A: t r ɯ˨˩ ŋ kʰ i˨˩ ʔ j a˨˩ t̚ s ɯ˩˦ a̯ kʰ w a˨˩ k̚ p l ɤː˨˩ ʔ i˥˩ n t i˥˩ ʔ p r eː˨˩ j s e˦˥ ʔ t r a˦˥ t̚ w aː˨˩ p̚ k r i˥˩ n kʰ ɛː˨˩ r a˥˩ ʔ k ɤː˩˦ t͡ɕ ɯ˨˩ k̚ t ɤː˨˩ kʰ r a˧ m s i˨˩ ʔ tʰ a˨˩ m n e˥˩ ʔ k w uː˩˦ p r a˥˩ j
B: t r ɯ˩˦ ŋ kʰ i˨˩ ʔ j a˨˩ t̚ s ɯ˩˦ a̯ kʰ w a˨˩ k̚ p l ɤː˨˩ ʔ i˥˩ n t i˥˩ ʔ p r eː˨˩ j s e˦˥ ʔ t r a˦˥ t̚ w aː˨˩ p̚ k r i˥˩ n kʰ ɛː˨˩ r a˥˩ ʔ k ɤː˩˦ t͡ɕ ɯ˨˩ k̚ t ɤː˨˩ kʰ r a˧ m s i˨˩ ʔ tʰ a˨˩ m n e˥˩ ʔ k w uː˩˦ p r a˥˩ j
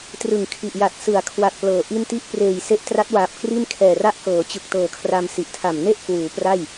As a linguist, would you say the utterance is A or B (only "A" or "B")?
A